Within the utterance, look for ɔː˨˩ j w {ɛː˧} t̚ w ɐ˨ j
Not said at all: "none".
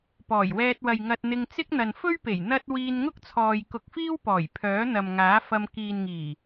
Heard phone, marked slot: ɛː˧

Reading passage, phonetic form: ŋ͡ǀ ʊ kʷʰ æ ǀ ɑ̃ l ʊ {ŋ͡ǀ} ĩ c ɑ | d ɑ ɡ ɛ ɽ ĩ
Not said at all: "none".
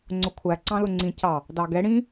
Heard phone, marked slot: ŋ͡ǀ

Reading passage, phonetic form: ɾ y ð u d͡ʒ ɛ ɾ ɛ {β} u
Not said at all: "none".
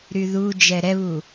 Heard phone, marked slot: β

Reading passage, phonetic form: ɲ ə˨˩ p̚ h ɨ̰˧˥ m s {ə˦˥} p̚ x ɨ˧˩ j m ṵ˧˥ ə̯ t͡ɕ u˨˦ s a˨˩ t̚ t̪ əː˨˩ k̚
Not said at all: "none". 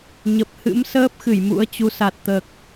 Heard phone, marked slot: əː˦˥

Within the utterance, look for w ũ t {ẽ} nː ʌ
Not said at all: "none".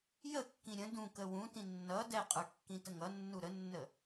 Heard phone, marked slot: ĩ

